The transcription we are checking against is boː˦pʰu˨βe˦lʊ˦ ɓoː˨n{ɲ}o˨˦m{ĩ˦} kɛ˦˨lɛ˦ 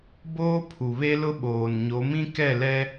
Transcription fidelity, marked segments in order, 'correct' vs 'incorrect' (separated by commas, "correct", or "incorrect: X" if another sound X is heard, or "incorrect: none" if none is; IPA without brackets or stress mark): correct, correct